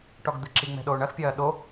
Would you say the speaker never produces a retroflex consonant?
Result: no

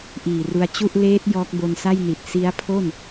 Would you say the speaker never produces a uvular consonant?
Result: yes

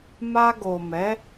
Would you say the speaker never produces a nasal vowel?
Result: yes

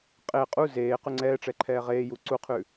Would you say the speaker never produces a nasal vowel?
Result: yes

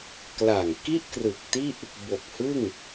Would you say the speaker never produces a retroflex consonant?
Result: yes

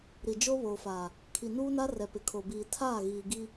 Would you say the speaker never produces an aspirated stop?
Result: no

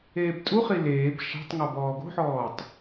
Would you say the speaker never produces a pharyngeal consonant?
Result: no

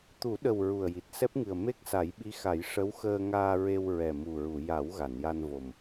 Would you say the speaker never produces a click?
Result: yes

